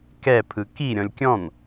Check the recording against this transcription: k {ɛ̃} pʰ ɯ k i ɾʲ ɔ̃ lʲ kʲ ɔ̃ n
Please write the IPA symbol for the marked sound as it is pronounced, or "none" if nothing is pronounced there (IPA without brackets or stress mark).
ɛ